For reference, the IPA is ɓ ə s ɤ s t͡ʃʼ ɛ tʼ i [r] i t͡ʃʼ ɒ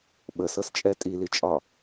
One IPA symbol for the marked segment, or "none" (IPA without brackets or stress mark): l